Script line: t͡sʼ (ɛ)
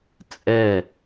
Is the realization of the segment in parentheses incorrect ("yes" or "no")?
no